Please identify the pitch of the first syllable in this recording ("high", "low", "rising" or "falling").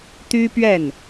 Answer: high